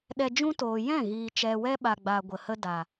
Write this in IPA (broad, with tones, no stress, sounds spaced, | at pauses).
ɗ ɛ˧ d͡ʒ ũ˦ t oː˨ j ɛ̃˦˨ ɣ iː˨ t͡ʃ ɛ˨ w ɛ˧ ɓ a˨ ɡ͡b a˨ ɡʷ ə˨ h ə˦ d a˨